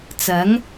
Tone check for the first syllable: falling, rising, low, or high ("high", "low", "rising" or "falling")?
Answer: rising